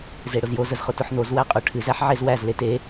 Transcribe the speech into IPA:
z e ɽ ʊ z j o z ə z χ ʊ t ʊ ħ n o z w æ qʼ ʊ ʈʰ ɨ z æ ħ ʕ e z w æ z l e t e

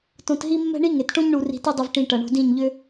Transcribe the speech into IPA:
t õ˧ t ɦ i˦ mː ɛ̤˦ ɳ i˦ ŋ e˨ t ʈ õ˦ ɲ ɳ u˧ r i̤˧ t i˦ dˤ ʏ˧ v ʈ ĩ˨ ʈ ɐ˨ ɳ o̤˧ d ĩ˦˨ ɲ ʎ ʏ˦

